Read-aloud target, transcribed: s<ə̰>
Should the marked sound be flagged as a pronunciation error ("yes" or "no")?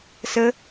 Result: yes